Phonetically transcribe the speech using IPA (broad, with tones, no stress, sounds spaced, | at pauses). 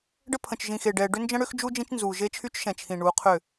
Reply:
ɖ ə˦ pʰ ə̃˨ t͡ʃ ʒ ĩ˨ x e˨ ɖ ɛː˨ ɖ ʏ˦ n d͡ʒ ə̃˦ ɽ ʏ˦ x d͡ʒ u˦ d͡ʒ ĩ˦ t͡ʃ n z uː˨ ʒ e˦ t͡ʃʰ y˦ t͡ʃ ʃ ɛ̃˨ t͡ʃʰ ĩ˨ ɳ uː˨˦ qʰ ʏ˦˨